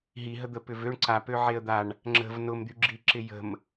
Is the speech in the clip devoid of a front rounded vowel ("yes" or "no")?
no